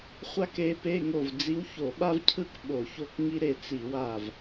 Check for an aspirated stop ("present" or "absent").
present